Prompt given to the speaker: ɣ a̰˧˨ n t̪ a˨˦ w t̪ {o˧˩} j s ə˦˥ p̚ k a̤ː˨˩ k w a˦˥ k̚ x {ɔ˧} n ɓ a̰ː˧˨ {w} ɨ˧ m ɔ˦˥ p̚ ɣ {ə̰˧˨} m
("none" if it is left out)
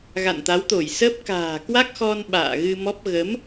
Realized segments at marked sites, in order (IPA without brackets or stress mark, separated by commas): o˧˩, ɔ˧, ɣ, ə˨˦